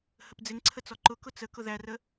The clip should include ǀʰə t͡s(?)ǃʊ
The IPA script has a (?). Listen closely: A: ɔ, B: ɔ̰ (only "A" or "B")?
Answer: A